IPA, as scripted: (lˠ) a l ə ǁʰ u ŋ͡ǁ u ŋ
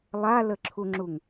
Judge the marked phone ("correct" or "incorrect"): correct